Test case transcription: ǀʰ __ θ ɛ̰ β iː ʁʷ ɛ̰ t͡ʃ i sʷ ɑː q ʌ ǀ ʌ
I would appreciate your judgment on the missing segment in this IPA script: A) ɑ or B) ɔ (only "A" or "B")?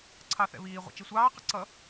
A